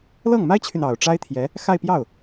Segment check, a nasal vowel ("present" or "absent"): absent